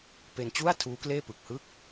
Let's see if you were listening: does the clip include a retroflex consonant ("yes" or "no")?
no